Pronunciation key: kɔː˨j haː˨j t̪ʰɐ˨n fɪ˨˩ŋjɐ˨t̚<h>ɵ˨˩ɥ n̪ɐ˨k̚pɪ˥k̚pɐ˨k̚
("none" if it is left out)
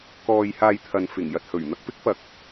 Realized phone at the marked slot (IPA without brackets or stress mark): h